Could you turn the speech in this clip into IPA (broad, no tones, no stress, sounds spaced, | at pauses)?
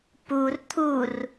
p u r t̪ʰ u r